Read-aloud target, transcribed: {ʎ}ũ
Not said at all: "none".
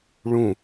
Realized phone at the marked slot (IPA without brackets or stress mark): ɭ